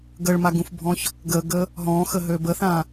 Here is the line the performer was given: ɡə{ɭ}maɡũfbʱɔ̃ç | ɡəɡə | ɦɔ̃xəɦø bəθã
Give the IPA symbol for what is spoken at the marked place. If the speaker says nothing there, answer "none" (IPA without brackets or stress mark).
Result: ɭ